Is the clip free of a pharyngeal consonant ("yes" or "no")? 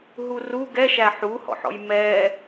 no